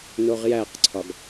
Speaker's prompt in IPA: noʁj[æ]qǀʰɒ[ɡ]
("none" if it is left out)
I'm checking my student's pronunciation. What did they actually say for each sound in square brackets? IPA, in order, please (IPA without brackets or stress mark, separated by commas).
æ, ɡ